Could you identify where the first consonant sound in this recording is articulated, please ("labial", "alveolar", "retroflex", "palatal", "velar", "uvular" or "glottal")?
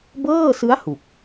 labial